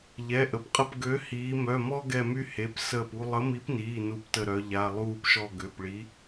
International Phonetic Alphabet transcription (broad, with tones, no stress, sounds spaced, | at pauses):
ʎ ɛ˩˧˩ ʔ ə˩˧ p qʼ ə˦˨ p ɡ ø˨˥ h iː˩˧ m œ˩˧˩ m ɔ˦ ɡ ɛ˦˨ m y˦ h e˩˧˩ p s əː˦˨ p u˦ lˠ ə˨˥ m i˨˥ p n iː˩˧˩ n u˦˨ p t ə˦˨ ɾ œ˩˧ ʎ a˩˧˩ lˠ uː˦˨ p ʃ ɔ˦˨ ɡ ø˩˧˩ p ɭ i˨˥